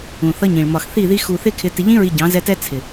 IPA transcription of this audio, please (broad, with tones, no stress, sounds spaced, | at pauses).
ũ˨ θ ʌ˧ ɲ ĩ˨ ɭ m ɒ˨ x θ i˦˨ ð i˧ x u˨ θ ɪ˦ kʰ ɪ˧ t ɪ˨ ʎ ĩ˧ ɹ i˨ ɟ ɑ̃˨˦ z ɛ˧ t ɛ˦ t͡sʰ ɪ˨